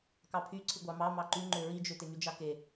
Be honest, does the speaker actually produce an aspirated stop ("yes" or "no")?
yes